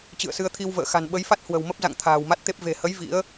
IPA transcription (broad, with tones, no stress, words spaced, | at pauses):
t͡ɕɨ̰˧˨ə̯sɨ˧ə̯ t̪ʰi˧wvə̰ː˧˨xa̤˨˩n ɓə˨˦jfa˦˥t̚ hwə̤˨˩wmə˦˥p̚za̰˧˨ŋ t̪ʰa̤ː˨˩wma˦˥t̚t̪e˦˥p̚ ve̤˨˩hə˨˦j vḭ˧˥ə̯